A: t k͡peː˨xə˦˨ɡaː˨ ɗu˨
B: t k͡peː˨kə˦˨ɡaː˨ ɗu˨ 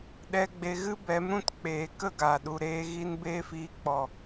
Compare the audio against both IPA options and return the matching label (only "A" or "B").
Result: B